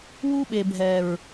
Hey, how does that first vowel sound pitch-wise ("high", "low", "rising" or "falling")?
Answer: high